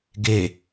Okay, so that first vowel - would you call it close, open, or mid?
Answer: mid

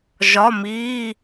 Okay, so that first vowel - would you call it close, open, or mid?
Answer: open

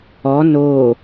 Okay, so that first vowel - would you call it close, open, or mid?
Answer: mid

